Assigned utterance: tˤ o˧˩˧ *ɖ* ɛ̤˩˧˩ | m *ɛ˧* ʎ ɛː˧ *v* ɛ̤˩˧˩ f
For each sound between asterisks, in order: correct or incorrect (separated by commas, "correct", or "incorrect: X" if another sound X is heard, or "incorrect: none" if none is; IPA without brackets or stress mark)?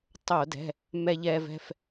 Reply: incorrect: d, correct, correct